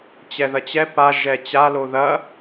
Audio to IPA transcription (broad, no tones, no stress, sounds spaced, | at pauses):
t͡ɕ ɛ ð ɐ t͡ɕ ɛ p a ʒ ɛ t͡ɕ a l o ð ɐ